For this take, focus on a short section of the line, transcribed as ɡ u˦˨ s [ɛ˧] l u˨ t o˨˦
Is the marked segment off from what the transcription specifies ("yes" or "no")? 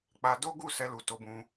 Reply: no